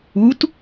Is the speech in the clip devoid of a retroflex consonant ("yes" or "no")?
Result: yes